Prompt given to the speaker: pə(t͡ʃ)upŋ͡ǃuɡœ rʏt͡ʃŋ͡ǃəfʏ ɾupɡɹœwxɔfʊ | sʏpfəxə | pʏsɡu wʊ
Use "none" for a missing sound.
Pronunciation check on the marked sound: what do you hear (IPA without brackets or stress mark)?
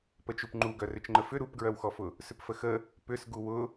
t͡ʃ